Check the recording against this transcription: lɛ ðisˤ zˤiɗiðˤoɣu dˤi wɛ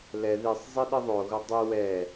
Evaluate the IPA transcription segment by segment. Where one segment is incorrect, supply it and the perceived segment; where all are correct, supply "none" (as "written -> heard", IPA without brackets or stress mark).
none